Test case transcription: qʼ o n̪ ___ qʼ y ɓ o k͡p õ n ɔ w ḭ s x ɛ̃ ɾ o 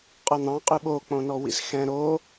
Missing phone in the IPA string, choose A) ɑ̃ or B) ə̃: A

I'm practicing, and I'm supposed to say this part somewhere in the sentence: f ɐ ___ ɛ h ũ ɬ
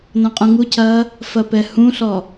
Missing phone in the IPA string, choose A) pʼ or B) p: B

